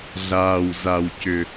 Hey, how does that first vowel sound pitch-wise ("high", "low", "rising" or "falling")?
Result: low